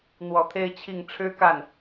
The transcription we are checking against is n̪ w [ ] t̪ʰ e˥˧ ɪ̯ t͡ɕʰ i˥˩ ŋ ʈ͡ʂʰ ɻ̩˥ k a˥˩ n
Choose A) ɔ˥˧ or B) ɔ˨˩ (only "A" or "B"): B